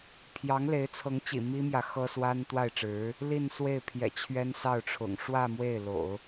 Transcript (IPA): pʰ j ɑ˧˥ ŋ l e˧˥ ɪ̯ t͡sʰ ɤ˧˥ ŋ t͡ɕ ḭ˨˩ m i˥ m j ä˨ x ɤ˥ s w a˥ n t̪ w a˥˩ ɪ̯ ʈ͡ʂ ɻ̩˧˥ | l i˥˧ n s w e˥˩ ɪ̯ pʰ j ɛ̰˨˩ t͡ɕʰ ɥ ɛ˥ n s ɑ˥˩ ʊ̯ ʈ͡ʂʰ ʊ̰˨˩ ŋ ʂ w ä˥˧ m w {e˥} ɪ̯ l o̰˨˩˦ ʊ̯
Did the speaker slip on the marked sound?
yes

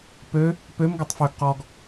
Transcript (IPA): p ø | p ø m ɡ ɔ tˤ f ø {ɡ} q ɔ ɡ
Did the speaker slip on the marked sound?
no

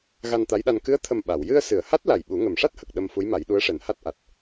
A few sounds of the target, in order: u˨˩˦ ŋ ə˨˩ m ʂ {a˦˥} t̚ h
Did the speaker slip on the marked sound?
no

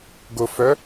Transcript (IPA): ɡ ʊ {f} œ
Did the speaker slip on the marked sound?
no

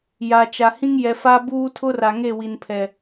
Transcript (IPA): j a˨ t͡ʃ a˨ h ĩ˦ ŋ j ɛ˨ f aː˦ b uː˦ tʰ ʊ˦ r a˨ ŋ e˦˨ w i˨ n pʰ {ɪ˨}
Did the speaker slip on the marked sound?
yes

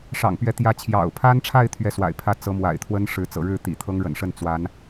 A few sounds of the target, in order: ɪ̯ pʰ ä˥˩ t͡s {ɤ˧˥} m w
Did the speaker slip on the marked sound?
no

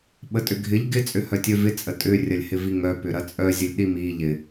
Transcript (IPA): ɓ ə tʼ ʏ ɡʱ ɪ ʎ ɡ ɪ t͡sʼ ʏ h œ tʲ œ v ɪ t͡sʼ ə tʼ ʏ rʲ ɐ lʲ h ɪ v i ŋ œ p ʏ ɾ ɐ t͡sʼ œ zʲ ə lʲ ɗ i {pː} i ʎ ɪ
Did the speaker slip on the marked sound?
yes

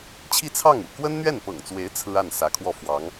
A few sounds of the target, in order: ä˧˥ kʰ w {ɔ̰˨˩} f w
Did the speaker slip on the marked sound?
yes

